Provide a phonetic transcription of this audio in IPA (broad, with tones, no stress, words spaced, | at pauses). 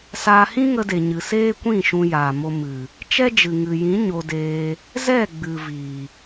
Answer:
saː˧ hĩ˦ŋə˧de˨ ɲɨ˨seː˦kʷĩ˦˨ ʃũ˧jaː˨mo˧ mɨ˨ | t͡ʃɛ˦d͡ʒɨ˨ŋɨ˨jĩ˨˦ ɲo˧deː˧ | zɛ˦˨ɡ͡bɨ˨ viː˨